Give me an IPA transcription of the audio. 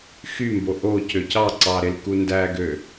x y m b o ʔ o c ø c ɑ ǀ ɑ ɾ e l k u n d æ ɡ ø

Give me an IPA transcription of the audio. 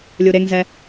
lʲ u ɾ e ŋ z ɛ

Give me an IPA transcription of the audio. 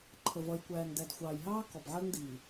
ǃʰ ə˨ v ʌ˨ j kʷ æː˨ ŋ d æ˨ d xʷ ɑː˨ j ɦ ɑː˦ k ɔ˨ b ʕ ɜ˦ ŋ d iː˨

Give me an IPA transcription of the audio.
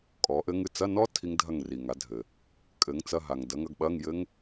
kʼ ɔ˨˥ ʔ ɘ˦˥ ŋ ɨ˥˨ t͡s ɐ˧˥˧ n ɔ˦˥ tʰ i˦˥ ŋ dʱ ɐ˥˨ ŋ r i˨ ŋ a˨˥ dʱ ɘ˨ | kʼ ɘ˨˥ ŋ t͡s ɐ˧˥˧ ɦ a˨ ŋ d ɐ˨˥ ŋ ɐ˧˥˧ ɡ ɓ ɐ˧˥˧ ŋ j ɘ˦˥ ŋ

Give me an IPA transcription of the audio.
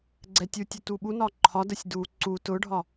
ɡ͡ǀ ɛ tʲ u tʲ ʊ t u ɓ u n ɒ ǃʰ ɒ d ə sʲ d u ǀ u t ʊ ɖʱ ɒ

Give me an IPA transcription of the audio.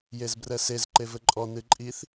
j e z b r ɛ s e z ǃ e v ɘ ǃʼ ɔ n ɨ ǃʼ i θ

